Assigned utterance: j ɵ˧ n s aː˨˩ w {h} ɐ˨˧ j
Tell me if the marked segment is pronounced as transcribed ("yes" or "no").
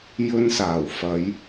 no